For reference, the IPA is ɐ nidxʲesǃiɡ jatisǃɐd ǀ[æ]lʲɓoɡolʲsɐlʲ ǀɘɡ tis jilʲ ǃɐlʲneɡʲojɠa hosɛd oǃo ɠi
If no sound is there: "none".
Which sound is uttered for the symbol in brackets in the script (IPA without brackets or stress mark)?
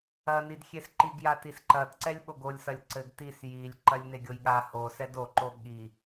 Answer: ɛ